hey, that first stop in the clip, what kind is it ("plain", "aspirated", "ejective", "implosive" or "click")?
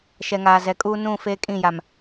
ejective